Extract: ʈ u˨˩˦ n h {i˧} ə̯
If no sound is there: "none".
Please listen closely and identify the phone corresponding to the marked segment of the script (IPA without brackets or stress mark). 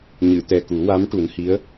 i˧˥